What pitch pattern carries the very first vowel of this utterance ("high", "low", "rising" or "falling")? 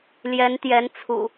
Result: rising